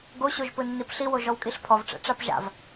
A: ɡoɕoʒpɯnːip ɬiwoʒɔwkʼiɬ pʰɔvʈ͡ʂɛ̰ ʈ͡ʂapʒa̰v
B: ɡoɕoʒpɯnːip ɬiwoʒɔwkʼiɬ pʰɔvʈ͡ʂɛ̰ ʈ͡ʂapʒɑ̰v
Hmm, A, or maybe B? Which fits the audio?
A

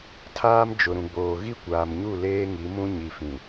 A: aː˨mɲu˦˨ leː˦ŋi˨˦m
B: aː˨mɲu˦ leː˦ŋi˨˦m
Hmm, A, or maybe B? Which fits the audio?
A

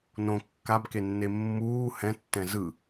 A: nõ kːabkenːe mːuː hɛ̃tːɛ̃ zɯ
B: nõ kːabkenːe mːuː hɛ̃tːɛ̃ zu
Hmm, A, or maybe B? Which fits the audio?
A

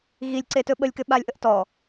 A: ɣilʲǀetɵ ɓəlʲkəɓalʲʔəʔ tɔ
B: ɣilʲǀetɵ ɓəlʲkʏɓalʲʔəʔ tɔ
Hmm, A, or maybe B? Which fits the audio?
B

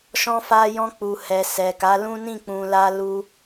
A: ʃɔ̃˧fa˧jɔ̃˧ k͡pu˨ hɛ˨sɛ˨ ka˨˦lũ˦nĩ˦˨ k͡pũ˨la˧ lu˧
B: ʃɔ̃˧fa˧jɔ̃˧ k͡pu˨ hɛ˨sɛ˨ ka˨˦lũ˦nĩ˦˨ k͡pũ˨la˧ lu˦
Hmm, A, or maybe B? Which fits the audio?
A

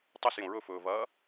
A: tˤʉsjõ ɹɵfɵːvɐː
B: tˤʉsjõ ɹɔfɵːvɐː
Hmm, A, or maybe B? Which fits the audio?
A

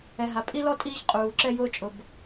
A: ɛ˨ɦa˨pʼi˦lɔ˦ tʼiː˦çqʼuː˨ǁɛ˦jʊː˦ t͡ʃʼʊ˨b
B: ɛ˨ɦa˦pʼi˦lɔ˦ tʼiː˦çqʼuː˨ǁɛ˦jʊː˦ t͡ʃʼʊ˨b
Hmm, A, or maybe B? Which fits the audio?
A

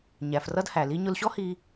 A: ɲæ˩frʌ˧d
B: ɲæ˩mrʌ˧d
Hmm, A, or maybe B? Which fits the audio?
A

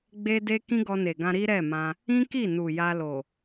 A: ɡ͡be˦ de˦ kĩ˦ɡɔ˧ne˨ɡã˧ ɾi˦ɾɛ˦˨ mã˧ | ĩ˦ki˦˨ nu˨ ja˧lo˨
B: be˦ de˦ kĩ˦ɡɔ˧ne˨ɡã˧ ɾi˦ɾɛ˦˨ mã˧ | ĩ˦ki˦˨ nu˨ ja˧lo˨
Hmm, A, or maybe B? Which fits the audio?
A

